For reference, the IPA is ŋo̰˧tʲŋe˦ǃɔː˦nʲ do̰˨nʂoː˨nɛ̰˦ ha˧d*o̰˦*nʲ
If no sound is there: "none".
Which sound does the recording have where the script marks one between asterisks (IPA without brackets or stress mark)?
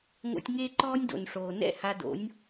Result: o̰˨˦